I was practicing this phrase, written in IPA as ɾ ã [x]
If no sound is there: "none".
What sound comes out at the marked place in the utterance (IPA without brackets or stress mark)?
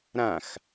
x